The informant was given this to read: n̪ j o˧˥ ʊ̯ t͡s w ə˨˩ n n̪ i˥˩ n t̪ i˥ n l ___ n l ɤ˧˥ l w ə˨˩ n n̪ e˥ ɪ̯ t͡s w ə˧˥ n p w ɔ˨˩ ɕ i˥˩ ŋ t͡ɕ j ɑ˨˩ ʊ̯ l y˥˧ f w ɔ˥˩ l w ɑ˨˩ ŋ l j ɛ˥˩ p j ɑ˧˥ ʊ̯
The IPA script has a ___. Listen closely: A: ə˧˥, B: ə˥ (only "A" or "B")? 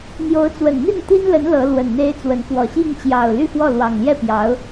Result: A